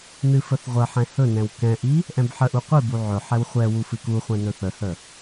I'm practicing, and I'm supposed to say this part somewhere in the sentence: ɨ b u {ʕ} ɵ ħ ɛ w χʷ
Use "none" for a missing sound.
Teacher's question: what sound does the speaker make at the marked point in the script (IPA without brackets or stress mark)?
ʕ